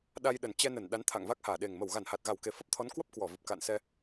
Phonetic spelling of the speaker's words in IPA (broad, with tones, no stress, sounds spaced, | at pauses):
ɗ a˧ j ɗ ə˨˩ n t͡ɕ ɛ˧ n ə˧˩ n ɗ a˨˦ n t̪ʰ a̰˧˨ ŋ v a˦˥ k̚ h aː˧˩ ɗ e˨˩ ŋ m ə˧˩ w ɣ a˧˩ n h a˨˩ t̚ ɣ a˧˩ w k e˨˩ f ə˦˥ p̚ t̪ʰ ɔ˨˦ n k w ə˦˥ p̚ k w ɔ˧˩ v ɨ˨˩ p̚ k a̰˧˨ n s ɛ˧